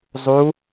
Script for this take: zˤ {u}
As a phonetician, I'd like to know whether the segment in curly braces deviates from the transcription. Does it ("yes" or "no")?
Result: no